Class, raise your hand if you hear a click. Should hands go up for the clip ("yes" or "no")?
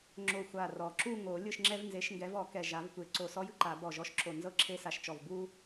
yes